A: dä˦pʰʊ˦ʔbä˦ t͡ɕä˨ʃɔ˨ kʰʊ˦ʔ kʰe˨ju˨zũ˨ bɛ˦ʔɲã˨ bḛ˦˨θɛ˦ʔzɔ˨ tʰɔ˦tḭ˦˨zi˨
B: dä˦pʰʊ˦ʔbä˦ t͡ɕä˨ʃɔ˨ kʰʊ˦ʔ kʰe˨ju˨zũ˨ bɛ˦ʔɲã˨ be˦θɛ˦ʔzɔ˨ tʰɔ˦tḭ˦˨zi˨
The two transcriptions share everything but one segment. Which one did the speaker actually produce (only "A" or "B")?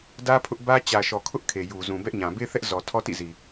B